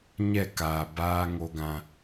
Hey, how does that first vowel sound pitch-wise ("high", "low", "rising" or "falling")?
falling